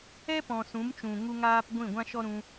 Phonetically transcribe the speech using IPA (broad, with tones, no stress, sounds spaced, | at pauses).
ɛ˦ p ɔ̃˨ s ũ˨˦ m t͡ʃ ũ˨ ŋ u˦ ŋ aː˦ p ɡʷ ĩ˦˨ ɡʷ ã˦ ʃ ɔ˦ ɾ ũ˧